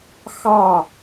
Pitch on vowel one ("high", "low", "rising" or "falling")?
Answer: falling